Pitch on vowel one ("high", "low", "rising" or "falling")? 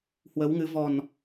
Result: rising